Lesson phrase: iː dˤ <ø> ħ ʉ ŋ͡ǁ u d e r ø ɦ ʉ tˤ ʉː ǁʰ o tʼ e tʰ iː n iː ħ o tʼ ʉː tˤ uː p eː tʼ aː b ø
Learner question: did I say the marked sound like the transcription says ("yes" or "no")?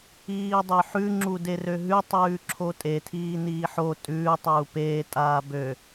yes